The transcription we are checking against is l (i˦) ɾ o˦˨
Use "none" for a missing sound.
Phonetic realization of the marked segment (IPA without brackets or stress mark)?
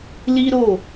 i˦